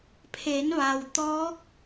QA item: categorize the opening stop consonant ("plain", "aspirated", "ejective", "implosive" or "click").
aspirated